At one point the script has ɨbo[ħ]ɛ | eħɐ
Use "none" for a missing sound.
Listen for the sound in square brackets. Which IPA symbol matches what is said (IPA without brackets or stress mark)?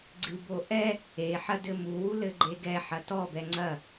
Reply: ʔ